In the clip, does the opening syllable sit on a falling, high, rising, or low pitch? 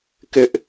high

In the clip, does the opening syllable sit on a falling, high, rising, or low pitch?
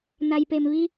low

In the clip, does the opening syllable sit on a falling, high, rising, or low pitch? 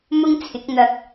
high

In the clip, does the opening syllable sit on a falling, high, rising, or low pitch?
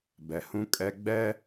low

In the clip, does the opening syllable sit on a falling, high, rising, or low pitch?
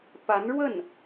rising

